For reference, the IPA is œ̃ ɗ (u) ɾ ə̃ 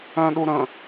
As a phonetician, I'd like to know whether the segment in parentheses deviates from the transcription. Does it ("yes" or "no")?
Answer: no